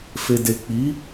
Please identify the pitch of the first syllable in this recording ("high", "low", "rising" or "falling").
low